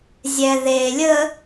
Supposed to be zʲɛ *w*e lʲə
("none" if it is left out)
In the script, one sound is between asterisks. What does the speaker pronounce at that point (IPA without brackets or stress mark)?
ð